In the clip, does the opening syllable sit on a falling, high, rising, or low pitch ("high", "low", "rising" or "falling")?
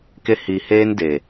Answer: high